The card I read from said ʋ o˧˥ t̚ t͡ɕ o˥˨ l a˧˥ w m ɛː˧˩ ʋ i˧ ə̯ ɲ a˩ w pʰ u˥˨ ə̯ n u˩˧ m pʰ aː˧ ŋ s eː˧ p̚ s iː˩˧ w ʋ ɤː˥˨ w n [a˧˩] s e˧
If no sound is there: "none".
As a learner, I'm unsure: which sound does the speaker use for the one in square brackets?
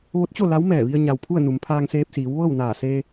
aː˧˩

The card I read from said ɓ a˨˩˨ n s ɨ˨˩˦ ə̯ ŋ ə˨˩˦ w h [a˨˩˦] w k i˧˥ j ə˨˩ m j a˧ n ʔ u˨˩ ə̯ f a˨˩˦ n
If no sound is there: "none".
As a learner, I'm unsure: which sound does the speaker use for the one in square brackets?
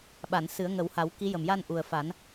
a˨˩˦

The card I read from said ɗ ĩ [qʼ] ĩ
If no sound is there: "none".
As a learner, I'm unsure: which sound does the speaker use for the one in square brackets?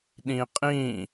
qʼ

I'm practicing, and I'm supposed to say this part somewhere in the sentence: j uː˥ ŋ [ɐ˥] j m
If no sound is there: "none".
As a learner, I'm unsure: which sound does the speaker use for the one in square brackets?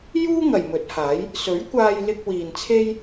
ɐ˨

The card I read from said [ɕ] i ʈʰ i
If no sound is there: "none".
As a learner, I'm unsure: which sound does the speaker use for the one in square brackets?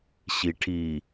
ɕ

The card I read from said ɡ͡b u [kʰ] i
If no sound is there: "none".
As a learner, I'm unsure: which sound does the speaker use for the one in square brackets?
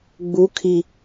kʰ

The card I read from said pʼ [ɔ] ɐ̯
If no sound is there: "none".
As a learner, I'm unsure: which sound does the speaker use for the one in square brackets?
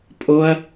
o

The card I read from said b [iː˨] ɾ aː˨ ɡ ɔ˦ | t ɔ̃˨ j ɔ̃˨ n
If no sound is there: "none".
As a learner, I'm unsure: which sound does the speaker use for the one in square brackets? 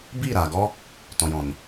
iː˦˨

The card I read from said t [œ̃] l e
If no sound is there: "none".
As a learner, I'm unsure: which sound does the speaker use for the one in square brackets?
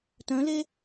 œ̃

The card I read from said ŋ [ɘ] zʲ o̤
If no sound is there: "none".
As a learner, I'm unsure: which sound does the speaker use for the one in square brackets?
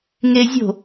e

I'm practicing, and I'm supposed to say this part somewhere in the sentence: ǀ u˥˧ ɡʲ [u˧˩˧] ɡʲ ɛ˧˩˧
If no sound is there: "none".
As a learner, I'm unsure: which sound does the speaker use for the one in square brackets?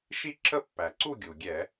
u˩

